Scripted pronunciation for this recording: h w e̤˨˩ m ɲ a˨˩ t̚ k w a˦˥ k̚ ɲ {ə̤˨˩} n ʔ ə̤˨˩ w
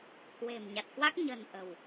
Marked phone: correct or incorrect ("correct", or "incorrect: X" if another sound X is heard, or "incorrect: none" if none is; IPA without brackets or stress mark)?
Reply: correct